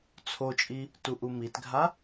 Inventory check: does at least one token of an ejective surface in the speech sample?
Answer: yes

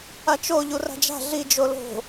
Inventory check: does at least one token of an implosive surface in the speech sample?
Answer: no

